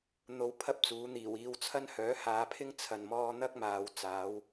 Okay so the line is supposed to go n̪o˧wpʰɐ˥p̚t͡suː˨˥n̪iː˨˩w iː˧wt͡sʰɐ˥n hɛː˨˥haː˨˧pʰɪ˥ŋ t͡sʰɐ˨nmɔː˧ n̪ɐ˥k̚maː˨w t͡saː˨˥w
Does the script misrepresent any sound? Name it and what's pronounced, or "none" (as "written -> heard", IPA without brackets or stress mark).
ɛː˨˥ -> œː˨˥